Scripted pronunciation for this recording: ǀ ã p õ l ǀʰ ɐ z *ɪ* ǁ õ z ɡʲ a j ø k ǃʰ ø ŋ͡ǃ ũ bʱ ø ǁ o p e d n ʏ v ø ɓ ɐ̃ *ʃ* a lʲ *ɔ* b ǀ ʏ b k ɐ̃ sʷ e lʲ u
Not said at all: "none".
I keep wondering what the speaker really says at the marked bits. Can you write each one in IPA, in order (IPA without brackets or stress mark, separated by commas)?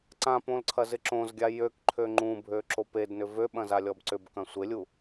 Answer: ɪ, z, ɔ